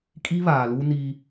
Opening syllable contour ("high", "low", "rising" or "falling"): high